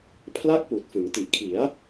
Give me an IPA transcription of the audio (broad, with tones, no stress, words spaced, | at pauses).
pʰla˥˩k̚puː˨˩t̚fɯ˩˦ŋ ti˨˩ʔkʰi˩˦a̯